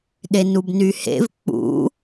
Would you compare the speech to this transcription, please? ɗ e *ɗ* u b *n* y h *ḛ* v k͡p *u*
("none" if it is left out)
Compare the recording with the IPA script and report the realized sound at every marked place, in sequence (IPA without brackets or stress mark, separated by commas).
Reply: n, n, ḛ, ṵ